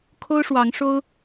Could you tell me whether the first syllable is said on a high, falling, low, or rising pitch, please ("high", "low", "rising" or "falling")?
high